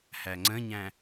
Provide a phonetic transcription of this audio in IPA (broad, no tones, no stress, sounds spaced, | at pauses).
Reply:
h æ ŋ͡ǀ ə̃ ɲ æ̃